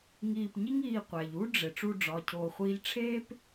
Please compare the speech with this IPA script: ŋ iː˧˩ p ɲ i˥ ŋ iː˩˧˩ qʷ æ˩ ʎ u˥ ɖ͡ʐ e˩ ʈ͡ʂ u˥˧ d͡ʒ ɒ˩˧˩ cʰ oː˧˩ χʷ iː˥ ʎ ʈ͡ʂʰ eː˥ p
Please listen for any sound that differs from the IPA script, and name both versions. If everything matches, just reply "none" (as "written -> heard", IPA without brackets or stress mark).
d͡ʒ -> ɖ͡ʐ